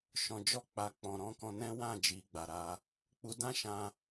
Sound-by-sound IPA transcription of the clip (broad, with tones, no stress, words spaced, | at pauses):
ʃɔ̃˨d͡ʒɔ˧ k͡pa˨k͡pɔ̃˨ ɾɔ̃˧kɔ̃˧ nɛ̃˦ wã˦˨d͡ʒi˨ɡ͡ba˨ɾa˧ | k͡pu˧dã˦ʃã˧